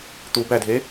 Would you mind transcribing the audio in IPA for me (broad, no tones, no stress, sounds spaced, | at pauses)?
t̪ u b æ dʱ e